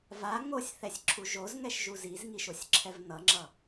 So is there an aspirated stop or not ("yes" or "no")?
yes